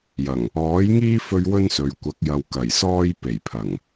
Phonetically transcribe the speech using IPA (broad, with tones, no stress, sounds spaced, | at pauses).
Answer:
j ɐ˨˩ ŋ | ɔː˨˥ j ŋ iː˥ f ɵ˧ ɥ w ɵ˥ n s ɵ˨ ɥ kʷ ɐ˨˥ k̚ j ɐ˨ w k ɐ˨˩ j s ɔː˥ j p e˨˩ j pʰ ɐ˨˩ ŋ